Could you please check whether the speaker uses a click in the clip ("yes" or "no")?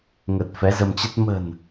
no